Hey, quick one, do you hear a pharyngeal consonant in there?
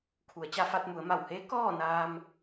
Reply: no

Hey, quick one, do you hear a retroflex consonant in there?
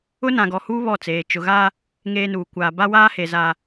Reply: no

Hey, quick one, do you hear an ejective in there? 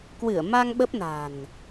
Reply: no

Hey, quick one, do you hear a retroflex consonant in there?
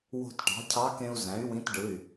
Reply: yes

